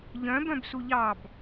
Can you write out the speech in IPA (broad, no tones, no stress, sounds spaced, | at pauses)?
ʎ œ̃ b œ̃ b s u ʎ ɑ b